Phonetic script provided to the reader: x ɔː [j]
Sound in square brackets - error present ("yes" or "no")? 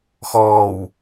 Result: yes